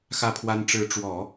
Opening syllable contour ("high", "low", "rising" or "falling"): falling